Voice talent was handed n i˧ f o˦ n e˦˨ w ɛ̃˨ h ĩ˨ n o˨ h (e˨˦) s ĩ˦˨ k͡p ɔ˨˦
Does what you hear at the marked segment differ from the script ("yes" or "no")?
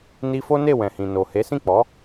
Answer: no